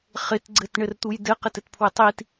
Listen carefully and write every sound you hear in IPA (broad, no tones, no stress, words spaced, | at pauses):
χɪt ɡ͡ǀɘtɳɘrt̪uj dɘqɘtɘtpʰwɪ tˤit